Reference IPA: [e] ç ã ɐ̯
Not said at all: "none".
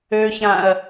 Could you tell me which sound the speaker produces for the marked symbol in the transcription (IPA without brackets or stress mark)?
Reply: ø